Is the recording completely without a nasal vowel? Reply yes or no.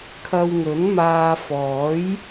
yes